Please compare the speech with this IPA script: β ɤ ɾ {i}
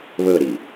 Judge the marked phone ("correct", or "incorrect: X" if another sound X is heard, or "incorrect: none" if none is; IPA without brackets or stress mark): correct